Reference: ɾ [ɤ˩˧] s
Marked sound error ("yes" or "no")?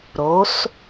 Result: yes